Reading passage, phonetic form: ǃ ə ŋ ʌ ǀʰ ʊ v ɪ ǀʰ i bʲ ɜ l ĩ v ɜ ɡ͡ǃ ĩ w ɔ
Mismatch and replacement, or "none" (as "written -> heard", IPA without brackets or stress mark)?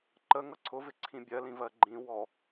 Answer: i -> ĩ